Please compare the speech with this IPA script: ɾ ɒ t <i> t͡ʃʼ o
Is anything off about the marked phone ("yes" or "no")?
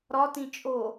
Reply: yes